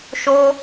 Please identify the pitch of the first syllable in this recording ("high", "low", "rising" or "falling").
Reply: high